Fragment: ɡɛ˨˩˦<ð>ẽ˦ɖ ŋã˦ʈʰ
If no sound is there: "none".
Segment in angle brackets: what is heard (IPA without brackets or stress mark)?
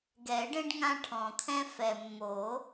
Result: ɖ